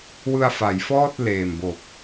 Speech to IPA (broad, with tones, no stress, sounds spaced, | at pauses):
w ɯ˧ a̯ f a˩˦ j f ɔː˥˩ t̚ l eː˨˩ m b o˨˩ k̚